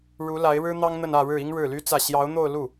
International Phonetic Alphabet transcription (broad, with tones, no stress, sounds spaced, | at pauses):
ɻ u˧˥ l a˧˥ ɪ̯ ɻ ɻ̩˥ n̪ ɑ˥ ŋ n̪ ə˥˧ n ä˥˧ ɻ ɻ̩˥˩ i˥ ŋ ɻ ɻ̩˥˩ l y˥ t͡s ä˥˩ ɕ j ɑ˧˥ ʊ̯ n̪ o˥˧ ʊ̯ l u˥˩